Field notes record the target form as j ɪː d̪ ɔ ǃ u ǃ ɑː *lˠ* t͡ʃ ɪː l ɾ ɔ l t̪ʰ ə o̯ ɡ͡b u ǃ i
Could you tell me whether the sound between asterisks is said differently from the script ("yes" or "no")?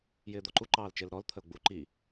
yes